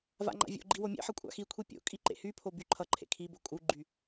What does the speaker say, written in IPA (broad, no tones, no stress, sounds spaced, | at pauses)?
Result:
v a̰ ŋ͡ǃ a̰ vʲ o̰ ɡ͡ǃ i w o mʲ ḛ ħ ʌ kʷʼ a̰ x i kʷʰ i pʲ o̰ kʼ i ǃ ḛ h y pʰ o b y ǃʰ ʌ ǃʰ ḛ kʰ i b o kʼ u ɡ͡ǃ y